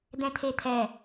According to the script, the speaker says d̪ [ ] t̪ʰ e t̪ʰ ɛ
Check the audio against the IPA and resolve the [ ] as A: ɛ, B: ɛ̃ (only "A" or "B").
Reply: B